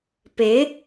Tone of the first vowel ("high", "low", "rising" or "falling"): rising